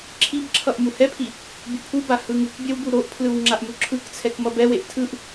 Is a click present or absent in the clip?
present